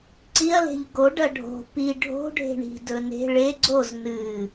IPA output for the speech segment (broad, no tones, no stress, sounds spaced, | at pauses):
ǀ i ɐ̯ l e̤ ʎ ɡ o ɖ ɐ ɖʱ o̤ p i ɖʱ o̤ ɖʱ e̤ ɳ i̤ d ɵ n e̤ ɭ e ɡ͡ǀ o z n ɨ